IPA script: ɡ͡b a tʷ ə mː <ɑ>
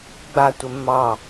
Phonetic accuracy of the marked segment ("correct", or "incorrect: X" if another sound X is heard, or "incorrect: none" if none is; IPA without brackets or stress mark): correct